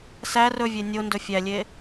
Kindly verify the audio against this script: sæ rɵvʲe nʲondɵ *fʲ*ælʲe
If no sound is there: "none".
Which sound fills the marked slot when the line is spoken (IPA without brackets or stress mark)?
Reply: fʲ